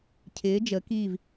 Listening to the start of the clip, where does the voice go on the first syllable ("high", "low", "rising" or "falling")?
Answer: rising